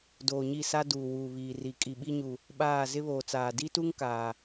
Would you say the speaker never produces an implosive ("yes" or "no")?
no